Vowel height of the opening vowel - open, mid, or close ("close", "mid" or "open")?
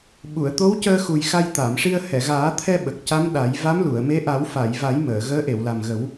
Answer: close